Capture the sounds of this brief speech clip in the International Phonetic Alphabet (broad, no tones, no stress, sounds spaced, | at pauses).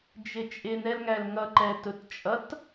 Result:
d͡ʒ ɪ t͡ʃʼ ɪ n ɛ l ŋ æ l ŋ ʌ ǃ ɛ t ʊ t t͡ʃʼ ʌ t